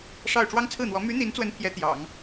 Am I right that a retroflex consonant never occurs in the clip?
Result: no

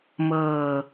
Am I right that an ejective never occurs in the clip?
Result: yes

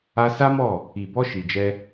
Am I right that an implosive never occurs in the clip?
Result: yes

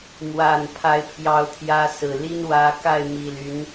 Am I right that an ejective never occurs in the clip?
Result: yes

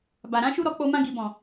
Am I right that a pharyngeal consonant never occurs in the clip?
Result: yes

